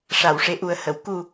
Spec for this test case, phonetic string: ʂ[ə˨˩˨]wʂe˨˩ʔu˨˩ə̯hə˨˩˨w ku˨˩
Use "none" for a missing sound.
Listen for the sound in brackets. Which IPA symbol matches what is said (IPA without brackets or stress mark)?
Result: a˨˩˨